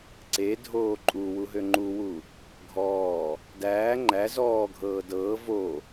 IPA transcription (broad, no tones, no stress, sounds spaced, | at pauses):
ǀ e dʱ oː ǃʼ u w u ɦ ø ŋ͡ǃ u w u | ɡʱ ɔː | d æː ŋ͡ǃ æ z ɔː ɡʱ ɤː d ɤː v o